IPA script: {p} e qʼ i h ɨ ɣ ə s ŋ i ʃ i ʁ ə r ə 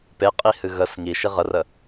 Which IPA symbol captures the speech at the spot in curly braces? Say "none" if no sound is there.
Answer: p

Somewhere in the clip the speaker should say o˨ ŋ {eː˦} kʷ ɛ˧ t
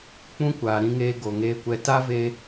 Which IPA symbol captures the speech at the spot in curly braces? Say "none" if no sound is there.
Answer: eː˧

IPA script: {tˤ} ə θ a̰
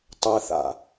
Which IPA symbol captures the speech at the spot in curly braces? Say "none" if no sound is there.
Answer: tˤ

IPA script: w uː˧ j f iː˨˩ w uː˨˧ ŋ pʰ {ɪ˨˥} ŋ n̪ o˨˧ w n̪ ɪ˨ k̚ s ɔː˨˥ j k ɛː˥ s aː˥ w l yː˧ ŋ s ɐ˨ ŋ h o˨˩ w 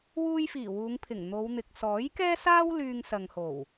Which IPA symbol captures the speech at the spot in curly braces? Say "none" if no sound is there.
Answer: ɪ˨˩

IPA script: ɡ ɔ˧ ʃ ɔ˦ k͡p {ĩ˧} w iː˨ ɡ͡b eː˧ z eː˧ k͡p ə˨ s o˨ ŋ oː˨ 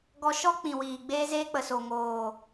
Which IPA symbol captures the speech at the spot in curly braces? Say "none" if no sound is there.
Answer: ĩ˨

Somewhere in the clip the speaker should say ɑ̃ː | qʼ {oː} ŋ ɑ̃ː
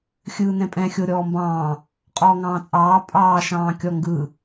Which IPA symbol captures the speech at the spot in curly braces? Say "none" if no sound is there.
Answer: ɔː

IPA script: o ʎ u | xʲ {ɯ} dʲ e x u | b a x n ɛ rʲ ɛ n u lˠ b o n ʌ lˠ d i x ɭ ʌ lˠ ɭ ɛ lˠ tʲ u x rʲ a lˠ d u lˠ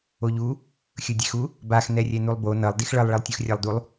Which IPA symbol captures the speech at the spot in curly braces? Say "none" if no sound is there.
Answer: ɯ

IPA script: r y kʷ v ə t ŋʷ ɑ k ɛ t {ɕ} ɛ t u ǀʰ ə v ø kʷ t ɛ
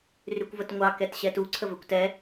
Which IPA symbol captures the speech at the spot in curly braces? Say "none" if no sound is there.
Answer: ɕ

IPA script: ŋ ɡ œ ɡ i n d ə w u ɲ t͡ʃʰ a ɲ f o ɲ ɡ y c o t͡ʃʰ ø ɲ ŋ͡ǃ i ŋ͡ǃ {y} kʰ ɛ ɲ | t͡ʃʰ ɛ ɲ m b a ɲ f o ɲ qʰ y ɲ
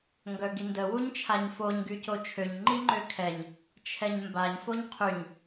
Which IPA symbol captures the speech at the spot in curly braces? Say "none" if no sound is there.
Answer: ø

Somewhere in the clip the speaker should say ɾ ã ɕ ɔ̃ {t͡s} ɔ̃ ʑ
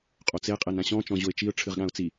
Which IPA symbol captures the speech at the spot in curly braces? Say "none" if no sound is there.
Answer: t͡ʃ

